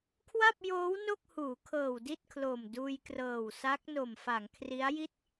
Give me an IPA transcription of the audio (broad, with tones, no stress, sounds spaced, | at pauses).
kʰ w a˥˩ p̚ j oː˦˥ w n o˥˩ k̚ h uː˩˦ kʰ ɤː˨˩ w d i˥˩ t̚ kʰ l o˨˩ m d uː˧ j k r ɤː˨˩ w s a˦˥ k̚ n o˨˩ m f a˩˦ ŋ kʰ r i˦˥ a̯ j i˥˩ t̚